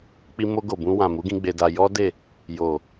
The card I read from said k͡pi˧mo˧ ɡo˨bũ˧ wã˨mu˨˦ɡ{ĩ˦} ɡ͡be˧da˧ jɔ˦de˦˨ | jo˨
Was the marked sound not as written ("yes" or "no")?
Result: yes